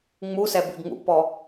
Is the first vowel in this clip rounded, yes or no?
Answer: yes